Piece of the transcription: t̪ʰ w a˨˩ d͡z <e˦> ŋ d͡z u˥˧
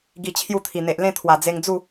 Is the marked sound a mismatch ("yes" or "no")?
yes